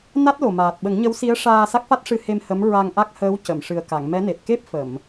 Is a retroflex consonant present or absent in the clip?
present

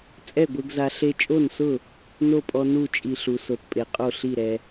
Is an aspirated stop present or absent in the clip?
absent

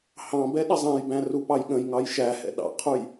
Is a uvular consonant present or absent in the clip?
present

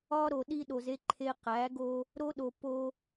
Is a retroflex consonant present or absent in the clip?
absent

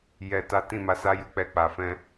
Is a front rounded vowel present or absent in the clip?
absent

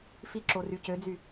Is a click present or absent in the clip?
present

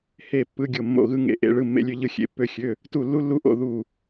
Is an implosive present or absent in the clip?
absent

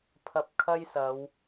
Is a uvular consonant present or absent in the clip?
absent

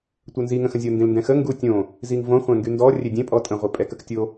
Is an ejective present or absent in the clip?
present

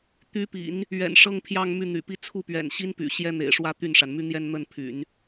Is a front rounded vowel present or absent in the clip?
present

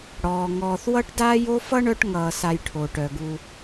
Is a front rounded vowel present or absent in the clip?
present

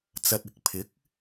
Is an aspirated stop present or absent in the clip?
present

